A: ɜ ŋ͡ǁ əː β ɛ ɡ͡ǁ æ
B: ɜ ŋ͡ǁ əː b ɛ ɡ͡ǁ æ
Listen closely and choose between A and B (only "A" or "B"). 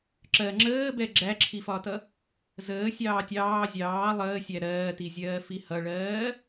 B